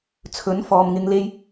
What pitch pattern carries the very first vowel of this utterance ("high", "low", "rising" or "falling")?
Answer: rising